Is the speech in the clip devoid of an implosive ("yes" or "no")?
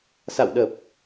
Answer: no